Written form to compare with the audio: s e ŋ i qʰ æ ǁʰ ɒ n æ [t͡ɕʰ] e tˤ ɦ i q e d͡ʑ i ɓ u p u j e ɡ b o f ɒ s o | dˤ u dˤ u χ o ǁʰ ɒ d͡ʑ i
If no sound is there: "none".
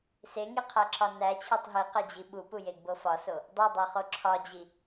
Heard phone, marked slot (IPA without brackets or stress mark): t͡ɕʰ